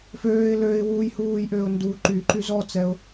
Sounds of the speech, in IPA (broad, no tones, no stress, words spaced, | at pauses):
føːɪ̯ løɪ̯ wujhuːjʔøʊ̯ ndu ǃyǃy zɔt͡sɛʊ̯